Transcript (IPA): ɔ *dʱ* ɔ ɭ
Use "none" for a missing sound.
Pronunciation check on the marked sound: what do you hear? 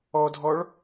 dʱ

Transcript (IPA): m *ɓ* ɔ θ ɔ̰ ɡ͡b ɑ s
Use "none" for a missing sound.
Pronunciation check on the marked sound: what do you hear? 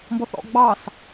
b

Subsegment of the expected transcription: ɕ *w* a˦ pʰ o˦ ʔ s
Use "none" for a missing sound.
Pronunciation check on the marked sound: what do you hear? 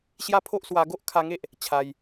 j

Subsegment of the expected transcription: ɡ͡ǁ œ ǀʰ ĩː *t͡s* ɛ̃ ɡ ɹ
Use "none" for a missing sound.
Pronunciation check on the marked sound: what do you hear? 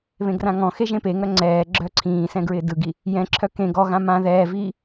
s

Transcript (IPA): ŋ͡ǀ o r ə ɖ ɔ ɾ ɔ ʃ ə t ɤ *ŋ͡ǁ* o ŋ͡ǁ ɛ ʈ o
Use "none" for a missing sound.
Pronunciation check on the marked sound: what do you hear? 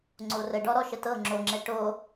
ŋ͡ǁ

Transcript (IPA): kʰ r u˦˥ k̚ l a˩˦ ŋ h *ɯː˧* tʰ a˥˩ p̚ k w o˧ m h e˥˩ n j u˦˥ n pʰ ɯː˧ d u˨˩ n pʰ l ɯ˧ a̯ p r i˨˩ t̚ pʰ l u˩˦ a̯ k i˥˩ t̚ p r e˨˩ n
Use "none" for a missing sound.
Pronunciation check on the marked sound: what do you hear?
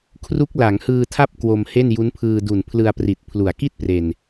ɯː˧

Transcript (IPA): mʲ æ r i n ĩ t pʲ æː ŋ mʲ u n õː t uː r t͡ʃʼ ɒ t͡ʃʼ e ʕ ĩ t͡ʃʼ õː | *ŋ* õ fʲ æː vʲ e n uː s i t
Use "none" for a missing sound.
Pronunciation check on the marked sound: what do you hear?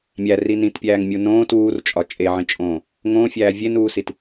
ŋ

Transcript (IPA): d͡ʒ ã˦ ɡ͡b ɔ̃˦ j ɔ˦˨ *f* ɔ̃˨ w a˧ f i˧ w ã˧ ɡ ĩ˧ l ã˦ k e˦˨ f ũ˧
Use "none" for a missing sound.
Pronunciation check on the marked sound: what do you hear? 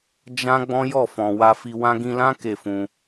f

